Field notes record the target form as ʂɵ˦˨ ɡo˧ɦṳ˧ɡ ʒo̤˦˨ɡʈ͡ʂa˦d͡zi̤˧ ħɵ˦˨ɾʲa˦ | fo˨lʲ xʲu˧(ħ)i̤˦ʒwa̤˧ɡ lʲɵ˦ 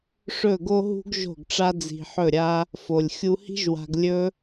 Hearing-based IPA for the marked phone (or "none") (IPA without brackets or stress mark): h